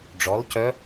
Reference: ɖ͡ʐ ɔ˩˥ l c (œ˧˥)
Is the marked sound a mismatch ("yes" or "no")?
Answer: no